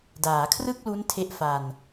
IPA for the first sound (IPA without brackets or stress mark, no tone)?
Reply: d